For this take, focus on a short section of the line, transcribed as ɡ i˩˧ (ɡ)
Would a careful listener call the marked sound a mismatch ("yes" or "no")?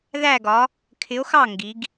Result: no